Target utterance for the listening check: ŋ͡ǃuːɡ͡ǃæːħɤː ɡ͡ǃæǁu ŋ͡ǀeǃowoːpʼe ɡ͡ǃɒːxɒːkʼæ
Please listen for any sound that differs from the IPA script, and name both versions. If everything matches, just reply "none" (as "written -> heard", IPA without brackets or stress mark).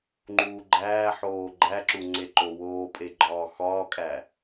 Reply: ɤː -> oː